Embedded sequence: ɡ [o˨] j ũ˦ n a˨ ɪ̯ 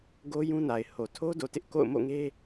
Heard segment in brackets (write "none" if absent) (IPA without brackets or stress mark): o˦